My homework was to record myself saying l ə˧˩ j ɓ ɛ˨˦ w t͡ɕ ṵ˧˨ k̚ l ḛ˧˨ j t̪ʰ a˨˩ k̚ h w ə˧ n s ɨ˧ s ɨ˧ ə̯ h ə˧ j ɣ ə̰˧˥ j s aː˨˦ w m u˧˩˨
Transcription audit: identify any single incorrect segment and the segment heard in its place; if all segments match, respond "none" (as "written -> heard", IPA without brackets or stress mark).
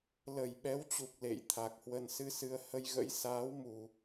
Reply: ṵ˧˨ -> u˨˩